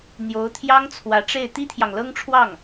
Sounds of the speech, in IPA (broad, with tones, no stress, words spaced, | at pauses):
n̪jo˧˥ʊ̯t̪ʰjɑ˥ŋ t͡sʰwä˧˥ʈ͡ʂe˥˩ɪ̯ t̪i˥t̪ʰjɑ˨ŋlɤ˥ŋʈ͡ʂʰwɑ˥˩ŋ